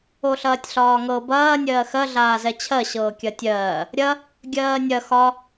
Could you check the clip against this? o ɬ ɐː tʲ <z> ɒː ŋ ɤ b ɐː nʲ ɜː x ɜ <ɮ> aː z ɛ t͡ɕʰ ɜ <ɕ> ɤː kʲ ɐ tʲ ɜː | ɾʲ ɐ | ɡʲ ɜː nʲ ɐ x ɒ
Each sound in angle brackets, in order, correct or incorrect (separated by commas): incorrect, correct, correct